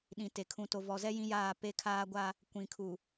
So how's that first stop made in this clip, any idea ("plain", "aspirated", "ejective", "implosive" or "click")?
implosive